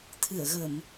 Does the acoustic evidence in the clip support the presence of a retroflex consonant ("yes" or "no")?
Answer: no